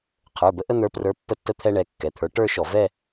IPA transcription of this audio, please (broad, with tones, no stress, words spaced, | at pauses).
qʰə˞˩˧˩bə˧ʔə˥˧ n̪ə˞˨˥prə˞˨˥ pːə˧tːə˧t̪ʰɛ˧ ɳɛ˩˧˩kːɛ˩˧˩t̪ʰə˞˨˥ ʈə˞˥˧ʃɔ˧˩˧ vɛ˥˧